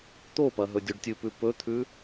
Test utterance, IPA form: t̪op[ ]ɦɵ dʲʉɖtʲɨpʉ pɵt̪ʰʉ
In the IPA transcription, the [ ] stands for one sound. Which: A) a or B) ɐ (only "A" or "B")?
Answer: B